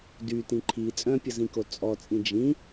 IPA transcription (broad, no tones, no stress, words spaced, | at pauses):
dytĩ ǃʰi t͡sʼœ̃pʲəzĩko t͡sʼɔt͡sʼĩ d͡ʒĩ